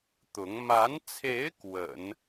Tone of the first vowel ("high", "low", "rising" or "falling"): rising